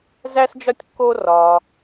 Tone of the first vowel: high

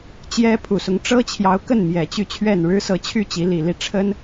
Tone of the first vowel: high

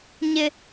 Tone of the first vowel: high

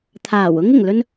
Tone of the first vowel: low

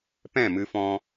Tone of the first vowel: falling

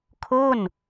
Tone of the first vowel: falling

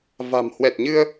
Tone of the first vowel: low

